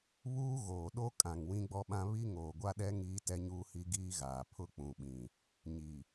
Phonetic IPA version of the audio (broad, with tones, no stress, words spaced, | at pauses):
βuː˦ ɣoː˨ɗo˦ kʼã˨ŋ wĩ˦ɡ͡bɔ˦ɓã˦ βi˦ ŋoː˨ɡʷa˦ɗɛ˦ ŋiː˦tɛ˦ɲuː˦hi˦ ɡiː˦ɣaː˨pʰʊ˦ k͡pũ˨ɓĩ˨ | ɲi˨